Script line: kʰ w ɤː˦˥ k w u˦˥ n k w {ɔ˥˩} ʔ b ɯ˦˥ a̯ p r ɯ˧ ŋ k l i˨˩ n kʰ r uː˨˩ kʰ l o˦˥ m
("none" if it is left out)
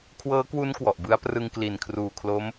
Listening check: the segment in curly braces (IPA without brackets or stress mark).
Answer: ɔ˨˩